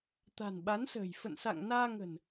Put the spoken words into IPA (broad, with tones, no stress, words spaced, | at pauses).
t̪a̤˨˩nɓa˨˦nsə̤ː˨˩j fə̰˧˨nsa̰˧˨ŋ naː˧ŋə̤˨˩n